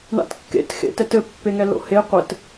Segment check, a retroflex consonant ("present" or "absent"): present